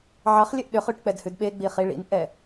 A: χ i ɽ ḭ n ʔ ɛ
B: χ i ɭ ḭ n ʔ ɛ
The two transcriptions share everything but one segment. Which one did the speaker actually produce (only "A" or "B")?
B